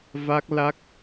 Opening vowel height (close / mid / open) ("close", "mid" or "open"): open